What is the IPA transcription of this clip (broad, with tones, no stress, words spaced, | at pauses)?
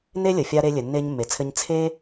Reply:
ne˥lʲə˩fʲa˧ ɾe˧lʲɘ˩nːe˧ɲ mːe˩t͡sʰɘ˧ɲ t͡sʰe˥